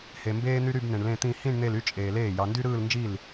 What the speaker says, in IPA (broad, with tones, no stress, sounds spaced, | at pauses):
h e˨ m b eː˥ n̪ y˥ ɾ y˥˧ b n̪ ẽ˨ ɳ l ẽ˥˧ t̪ ĩ˥˧ h ĩ˥˧ ɳ n̪ e˥˧ l y˥ t͡ʃʼ eː˨ l eː˥˩ j ɑ˨ n d y˥ ɾ ɯː˥˧ l n d͡ʒ i˥˩ l